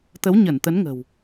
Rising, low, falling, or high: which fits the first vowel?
rising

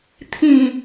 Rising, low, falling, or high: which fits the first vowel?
low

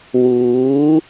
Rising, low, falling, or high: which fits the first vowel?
rising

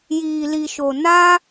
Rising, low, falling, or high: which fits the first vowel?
low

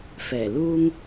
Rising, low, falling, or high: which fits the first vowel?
low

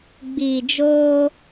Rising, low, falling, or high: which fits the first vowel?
low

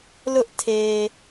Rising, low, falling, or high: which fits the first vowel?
high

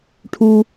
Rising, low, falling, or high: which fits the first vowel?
low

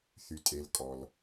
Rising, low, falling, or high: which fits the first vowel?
low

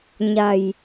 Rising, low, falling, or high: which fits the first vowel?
low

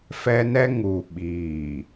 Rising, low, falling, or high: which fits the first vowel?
high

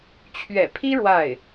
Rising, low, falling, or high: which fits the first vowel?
low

